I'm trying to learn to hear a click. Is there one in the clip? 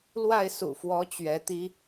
no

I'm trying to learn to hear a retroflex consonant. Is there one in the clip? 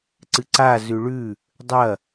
yes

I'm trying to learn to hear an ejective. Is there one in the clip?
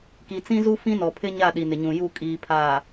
yes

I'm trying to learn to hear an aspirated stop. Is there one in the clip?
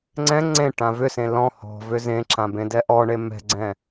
no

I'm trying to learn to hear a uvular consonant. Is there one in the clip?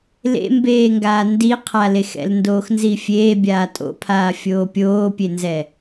yes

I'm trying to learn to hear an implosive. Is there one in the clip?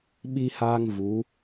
yes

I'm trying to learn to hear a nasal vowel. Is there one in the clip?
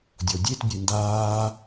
no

